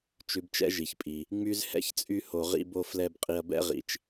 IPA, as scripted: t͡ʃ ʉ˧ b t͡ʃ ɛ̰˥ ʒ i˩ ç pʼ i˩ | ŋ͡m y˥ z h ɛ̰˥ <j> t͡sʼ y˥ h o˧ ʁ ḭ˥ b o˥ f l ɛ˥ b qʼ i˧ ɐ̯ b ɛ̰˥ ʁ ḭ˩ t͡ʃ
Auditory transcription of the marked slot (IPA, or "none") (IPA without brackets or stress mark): ç